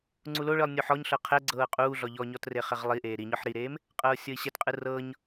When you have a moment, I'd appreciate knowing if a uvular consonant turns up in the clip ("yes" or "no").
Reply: yes